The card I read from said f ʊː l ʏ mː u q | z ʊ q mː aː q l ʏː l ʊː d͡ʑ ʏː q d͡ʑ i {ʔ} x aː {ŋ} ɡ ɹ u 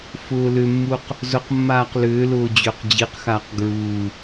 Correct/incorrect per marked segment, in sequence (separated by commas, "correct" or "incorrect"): incorrect, incorrect